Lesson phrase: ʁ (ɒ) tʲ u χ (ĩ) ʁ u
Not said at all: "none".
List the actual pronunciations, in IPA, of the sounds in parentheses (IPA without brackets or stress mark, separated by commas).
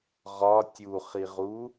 ɒ, i